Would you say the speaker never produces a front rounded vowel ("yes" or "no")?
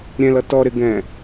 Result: yes